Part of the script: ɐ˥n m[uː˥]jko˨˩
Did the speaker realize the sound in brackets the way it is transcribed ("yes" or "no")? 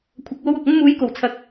no